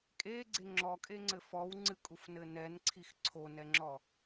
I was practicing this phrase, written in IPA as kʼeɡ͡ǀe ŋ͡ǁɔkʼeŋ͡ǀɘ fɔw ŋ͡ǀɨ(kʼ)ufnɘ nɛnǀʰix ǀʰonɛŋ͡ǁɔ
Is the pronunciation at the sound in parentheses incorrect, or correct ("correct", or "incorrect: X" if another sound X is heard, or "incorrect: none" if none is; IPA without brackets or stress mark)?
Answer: correct